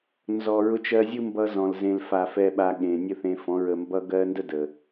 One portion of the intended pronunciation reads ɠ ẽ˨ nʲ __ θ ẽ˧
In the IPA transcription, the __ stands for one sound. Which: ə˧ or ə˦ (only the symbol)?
ə˦